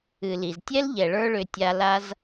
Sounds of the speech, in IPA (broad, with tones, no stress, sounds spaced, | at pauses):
ɨ˨ l i˨ z tʲ ɛ˦ l ʎ ɛ˨ ɭ ə˞˦ ɭ ʏ˧ tʲ a˧ l a˦ z